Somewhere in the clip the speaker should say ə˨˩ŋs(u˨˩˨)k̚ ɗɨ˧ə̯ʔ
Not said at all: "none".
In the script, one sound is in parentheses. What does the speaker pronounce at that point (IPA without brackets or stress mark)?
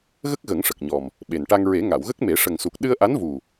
u˨˩